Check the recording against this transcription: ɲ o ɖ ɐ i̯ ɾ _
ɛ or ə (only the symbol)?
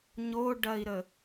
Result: ə